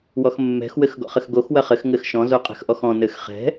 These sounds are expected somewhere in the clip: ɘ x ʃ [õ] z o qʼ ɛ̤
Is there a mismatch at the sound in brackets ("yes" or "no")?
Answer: yes